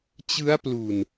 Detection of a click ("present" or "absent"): absent